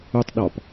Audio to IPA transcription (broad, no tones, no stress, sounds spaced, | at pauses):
u tˤ ɗ ɒ p